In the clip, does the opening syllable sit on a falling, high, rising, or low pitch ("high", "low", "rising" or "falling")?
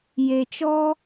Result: low